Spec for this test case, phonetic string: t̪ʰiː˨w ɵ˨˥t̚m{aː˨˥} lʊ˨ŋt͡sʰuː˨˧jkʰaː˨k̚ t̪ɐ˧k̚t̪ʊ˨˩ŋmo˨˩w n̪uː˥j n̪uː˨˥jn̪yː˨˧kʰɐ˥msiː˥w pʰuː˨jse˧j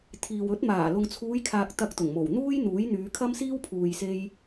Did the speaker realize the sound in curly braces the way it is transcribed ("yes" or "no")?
no